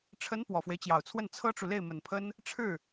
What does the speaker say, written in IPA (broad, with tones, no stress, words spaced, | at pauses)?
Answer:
ʈ͡ʂʰə˧˥n pwɔ˨˩fwe˦ɪ̯t͡ɕjɑ˨˩ʊ̯t͡sʰwə˥˩n t͡sʰɤ˥ʈ͡ʂu˨ le˥˩ɪ̯mə˨˩npʰə˥n | ʈ͡ʂʰɻ̩˥˩